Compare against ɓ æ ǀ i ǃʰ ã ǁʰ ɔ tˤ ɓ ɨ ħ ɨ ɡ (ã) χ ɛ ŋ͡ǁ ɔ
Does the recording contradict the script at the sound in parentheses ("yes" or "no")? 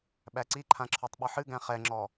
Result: yes